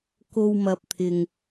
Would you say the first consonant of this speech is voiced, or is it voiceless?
voiceless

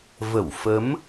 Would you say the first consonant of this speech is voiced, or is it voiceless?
voiced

